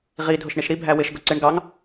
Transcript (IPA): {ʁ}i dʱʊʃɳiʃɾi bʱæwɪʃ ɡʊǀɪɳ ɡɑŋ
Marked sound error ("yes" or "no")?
no